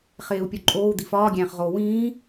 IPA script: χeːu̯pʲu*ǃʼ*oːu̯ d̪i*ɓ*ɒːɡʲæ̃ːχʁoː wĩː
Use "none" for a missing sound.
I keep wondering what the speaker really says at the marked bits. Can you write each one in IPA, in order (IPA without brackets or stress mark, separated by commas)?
ǃʼ, f